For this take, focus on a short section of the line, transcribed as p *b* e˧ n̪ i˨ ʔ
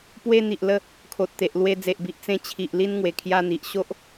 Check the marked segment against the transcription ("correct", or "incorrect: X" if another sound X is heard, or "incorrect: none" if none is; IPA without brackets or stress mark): incorrect: w